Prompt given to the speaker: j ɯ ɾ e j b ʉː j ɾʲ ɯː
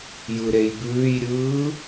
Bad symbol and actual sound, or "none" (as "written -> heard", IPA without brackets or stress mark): none